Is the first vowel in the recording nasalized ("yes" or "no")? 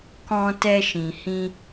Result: yes